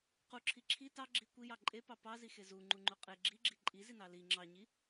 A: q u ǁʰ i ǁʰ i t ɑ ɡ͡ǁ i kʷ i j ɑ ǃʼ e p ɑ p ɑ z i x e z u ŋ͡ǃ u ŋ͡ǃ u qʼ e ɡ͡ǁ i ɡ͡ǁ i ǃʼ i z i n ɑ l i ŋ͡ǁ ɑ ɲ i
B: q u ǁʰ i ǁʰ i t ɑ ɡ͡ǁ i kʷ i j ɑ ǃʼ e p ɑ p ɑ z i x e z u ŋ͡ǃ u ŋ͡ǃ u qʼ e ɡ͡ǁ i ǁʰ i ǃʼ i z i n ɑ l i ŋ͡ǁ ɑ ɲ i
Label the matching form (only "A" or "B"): A